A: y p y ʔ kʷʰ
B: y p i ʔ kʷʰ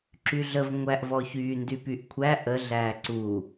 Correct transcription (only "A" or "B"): A